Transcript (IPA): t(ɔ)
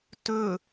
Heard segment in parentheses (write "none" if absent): ɵ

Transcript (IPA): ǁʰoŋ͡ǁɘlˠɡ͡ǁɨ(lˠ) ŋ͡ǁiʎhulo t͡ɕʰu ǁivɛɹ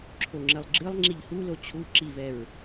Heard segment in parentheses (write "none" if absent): lˠ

